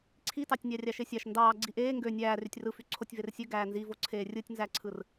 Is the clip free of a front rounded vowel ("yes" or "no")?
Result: no